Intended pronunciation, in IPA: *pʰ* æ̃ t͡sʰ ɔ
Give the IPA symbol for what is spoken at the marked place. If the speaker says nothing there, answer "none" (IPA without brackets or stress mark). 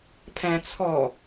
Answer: pʰ